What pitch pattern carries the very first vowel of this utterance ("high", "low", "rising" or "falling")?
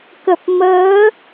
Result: low